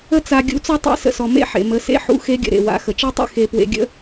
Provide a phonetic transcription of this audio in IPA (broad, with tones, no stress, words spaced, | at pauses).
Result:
ə˥t͡sa˧ ɡʲṵ˧˥t͡sɔ˥tˤḛ˧˥ sə̰˧sɔ˩ mḛ˥ħḛ˩ mə˩˧sḛ˧ħṵ˧˥ xe˧˥ɡʲə̰˩ ɾḛ˩wa̰˩˧ xə˩t͡ʃe˥tˤḛ˥ xe˧ pwḛ˧ɡʲə̰˥